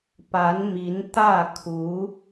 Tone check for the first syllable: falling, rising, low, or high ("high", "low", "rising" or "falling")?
rising